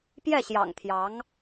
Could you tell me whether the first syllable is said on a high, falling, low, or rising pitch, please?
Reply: falling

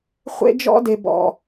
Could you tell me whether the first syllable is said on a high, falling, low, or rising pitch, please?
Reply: high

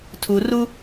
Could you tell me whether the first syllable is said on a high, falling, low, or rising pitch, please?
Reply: low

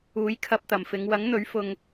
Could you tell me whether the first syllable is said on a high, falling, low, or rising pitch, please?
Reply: rising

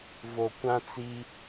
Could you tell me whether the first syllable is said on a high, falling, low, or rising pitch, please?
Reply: low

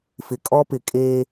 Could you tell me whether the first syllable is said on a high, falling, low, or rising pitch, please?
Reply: low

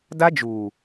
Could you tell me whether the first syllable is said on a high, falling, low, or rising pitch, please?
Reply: high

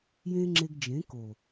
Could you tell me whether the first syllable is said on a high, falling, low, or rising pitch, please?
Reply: high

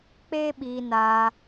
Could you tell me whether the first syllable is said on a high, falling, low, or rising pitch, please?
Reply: high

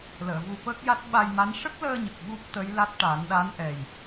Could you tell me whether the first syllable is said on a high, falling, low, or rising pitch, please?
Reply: low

